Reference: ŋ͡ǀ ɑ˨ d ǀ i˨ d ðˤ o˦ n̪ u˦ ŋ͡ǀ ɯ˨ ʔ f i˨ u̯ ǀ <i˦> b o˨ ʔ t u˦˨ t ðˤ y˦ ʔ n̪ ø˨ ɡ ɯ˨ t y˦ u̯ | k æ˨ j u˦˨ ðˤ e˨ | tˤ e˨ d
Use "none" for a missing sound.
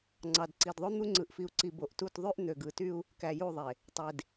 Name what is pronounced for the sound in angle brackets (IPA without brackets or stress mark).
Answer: i˨